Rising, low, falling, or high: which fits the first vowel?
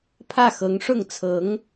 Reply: falling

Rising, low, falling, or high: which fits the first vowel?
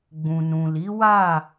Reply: low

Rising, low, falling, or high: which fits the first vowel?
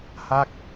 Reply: falling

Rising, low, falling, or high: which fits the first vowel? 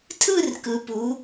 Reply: falling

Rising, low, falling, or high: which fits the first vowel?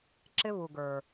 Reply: high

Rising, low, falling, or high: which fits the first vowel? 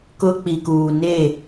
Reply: high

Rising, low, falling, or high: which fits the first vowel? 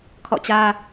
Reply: falling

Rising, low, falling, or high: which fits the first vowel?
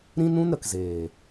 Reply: high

